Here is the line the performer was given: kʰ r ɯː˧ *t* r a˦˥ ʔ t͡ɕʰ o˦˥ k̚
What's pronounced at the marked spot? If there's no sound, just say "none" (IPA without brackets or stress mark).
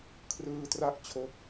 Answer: t